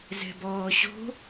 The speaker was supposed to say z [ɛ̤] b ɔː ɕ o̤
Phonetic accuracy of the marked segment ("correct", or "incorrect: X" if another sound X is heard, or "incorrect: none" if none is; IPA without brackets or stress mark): correct